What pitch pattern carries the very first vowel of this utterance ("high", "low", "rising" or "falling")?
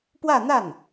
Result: falling